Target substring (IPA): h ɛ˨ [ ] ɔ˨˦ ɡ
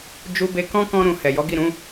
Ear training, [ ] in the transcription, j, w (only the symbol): j